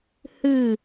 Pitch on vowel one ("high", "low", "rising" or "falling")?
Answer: falling